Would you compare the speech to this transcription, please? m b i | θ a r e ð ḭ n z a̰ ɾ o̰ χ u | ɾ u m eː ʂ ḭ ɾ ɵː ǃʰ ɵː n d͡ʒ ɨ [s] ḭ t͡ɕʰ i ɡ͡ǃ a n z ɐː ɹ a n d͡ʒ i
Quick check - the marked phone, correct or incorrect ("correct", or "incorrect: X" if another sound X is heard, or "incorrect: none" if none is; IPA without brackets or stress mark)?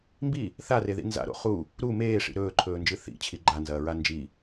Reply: incorrect: θ